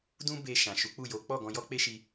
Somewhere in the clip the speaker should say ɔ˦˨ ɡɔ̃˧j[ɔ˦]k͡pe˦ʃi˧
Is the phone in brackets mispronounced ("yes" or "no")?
no